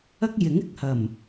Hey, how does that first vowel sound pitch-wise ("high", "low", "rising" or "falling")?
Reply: high